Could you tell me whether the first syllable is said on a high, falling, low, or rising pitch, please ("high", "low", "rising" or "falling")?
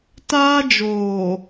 high